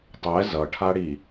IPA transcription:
tˤ ɛ z ʌ ʈʰ a ɽ i

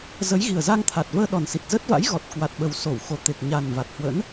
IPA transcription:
z ə˨˦ j ɣ i˨˩ ə̯ z a˧ ŋ t̪ʰ a˨˩ t̚ v əː˧ ɗ ɔ˨˩ n s i˨˩ t̚ z ə˦˥ t̚ v a̰˧˥ j ɣ ɔ˨˩ t̚ k w a˨˩ t̚ ɓ ə˨˩ w s o˧˩ w x o˨˩ t̪ e˨˩ k̚ ɲ a˨˩ n v a˨˩ t̚ h w ə̰˧˥ n

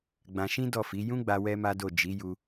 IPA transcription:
ɡ͡b ã˧ ʃ ĩ˦ d ɔ˦˨ f i˨˦ j ũ˦ ɡ͡b a˧ w ɛ˦ m a˦ d o˦˨ d͡ʒ i˨˦ j u˧

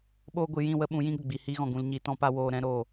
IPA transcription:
ɓ oː˧ ɡʷ ɨ˨ j ĩ˦˨ w ə˦ ɓ ũ˨˦ j ĩ˦ ɡ ə˨ ɡ͡b i˨ h iː˧ ɣ ɔ̃˨ ɡ ũ˨ l ɲ i˨ t ɔ̃˧ p a˧ w oː˧ ɾ ɛ̃˦ ɾ oː˦˨

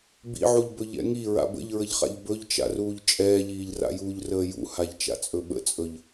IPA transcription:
b ḭ ʕ u ʎ b ɵ ʎ ɛ̰ ŋ i ɹ a̰ b ə̰ ʎ ɹ ə ʎ χ a̰ ʎ b ɵ ʎ t͡ʃ a̰ r uː ʎ t͡ʃʼ ɛː ʎ iː ʎ r a̰ j uː ʎ r əː j ṵ h a ʎ t͡ʃ a̰ t͡sʼ ɵ ɓ ə̰ t͡sʼ ɵ ʎ

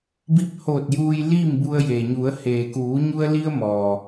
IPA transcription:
b i˧ p̚ h oː˧˩ t̚ j uː˧ j l iː˥˨ m b u˧ ə̯ j e˩ ɲ u˩˧ ə̯ h eː˩ k uː˩˧ ɲ u˧ ə̯ l i˧ ə̯ m ɔː˩

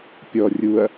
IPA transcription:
pʲ ɔ rʲ u ɐ̯

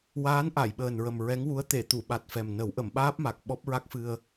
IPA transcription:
w aː˧˥ n ʔ a˨˩˨ j ɓ əː˨˩ n ɹ ə˨˩ m ɹ ɛ˧˥ ŋ w u˧˥ ə̯ t̪ e˨˩˨ t̪ u˨˩˨ ɓ a˨˩ t̚ f ɛ˨˩ m n ə˨˩˦ w ʔ ə˨˩˨ m ɓ aː˦˥ p̚ m a˨˩ k̚ ɓ ɔ˦˥ p̚ ɹ a˦˥ k̚ f ɨ˧ ə̯

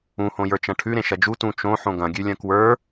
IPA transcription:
ũ h õ j ə˞ t͡ʃ ɐ̃ ʈʰ ʉ ɾ ẽ ʃ ɐ d͡ʒ u t ũ t͡ʃ õ ħ õ ɡ ɐ̃ ɡʲ ʉ lʲ ɐ̃ k w ə˞

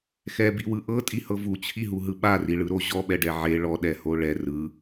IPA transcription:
x ɛ b i w ɯ ʔ ɤ tʼ i h ɤ v u t͡ɕʰ i ɦ u ɦ ɯ ɓ a r i ɭ ɯ ɾ o ʑ ɔ ɓ ɛ ɖ ɛ ʕ e ɭ ɔ ɗ ɛ h o ɭ ɛ r ɯ

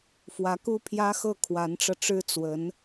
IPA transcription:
f w ä˧˥ k u˥ pʰ j ä˥ x ɤ˥˩ kʰ w a˧˥ n ʈ͡ʂ ɤ˧ ʈ͡ʂ ɻ̩˥ t͡s w ə˧˥ n

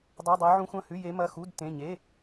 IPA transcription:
dˤ ʉ˧˥˧ dˤ e˦˥ ʕ ũ˦˥ xʷ ɐ̃˧˥˧ h ʉ˧˥˧ j e˦˥ m ɐ˧˥˧ x u˧˥˧ d t ẽ˧˥˧ ɲ e˧˥˧

